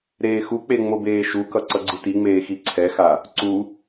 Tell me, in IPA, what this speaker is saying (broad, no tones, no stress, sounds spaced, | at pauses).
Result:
ɾ eː x u k͡p e ŋ͡m o b eː ʃ u k ʌ ǀ ʌ ɡ͡ǀ ɯ t i ŋ͡m eː x i ǀʰ ɛ x a | ǀ u